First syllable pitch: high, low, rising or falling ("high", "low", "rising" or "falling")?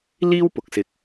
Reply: high